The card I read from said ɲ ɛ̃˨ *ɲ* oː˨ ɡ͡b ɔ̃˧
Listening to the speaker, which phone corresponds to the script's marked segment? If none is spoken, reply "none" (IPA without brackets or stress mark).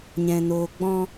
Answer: n